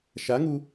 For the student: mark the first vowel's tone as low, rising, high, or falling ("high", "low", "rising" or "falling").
rising